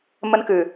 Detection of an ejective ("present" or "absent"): absent